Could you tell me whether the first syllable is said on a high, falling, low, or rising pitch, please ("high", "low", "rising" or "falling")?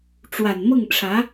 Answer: low